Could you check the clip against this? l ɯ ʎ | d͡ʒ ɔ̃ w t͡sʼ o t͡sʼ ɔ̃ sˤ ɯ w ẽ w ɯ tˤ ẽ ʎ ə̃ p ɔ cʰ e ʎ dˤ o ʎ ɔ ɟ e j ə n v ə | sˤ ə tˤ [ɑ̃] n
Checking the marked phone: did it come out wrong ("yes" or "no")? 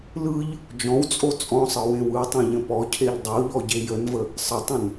yes